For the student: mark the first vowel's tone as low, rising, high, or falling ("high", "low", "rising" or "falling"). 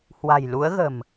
low